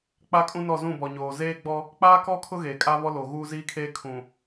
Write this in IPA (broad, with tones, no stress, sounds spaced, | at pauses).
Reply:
k͡p a˦ kʼ ũ˦ n ɔ˦˨ z ũ˦˨ b ɔ˨ ɲ oː˨ z eː˦ ɡ͡b ɔ˦ | k͡p aː˦ k ɔ˦ kʰ ʊ˦ ɣ eː˨ kʼ a˦ β ɔ˦ l o˨ ɣ uː˦ z iː˦ kʰ eː˦ kʰ ũ˨